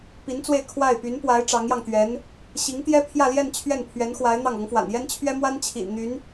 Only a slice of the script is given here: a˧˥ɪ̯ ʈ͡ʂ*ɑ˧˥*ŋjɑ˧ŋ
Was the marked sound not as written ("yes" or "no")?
no